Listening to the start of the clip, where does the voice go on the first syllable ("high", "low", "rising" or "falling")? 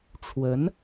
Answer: rising